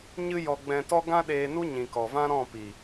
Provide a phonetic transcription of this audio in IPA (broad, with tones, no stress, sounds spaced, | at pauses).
ɲ ɨ˧ j ɔ˨ ɡ͡b ɛ̃˨ t ɔ˧ ɡ ã˦ ɗ eː˧ n u˦ ɲ ĩ˨ k ɔ˨ v ã˦ ɾ ɔ̃˦˨ p i˨